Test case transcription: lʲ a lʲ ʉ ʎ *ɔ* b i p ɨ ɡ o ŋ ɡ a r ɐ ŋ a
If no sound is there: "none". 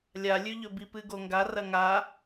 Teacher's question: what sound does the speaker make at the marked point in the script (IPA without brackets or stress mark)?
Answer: ɵ